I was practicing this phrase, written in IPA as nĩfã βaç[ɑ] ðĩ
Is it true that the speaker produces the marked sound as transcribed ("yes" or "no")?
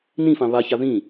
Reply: no